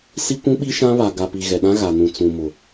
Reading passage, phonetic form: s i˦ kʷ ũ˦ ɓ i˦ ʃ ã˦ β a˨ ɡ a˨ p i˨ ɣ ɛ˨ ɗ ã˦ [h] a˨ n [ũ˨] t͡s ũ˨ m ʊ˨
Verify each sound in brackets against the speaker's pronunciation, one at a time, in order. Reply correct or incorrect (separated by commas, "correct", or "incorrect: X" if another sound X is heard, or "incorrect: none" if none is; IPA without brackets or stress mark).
incorrect: ɣ, correct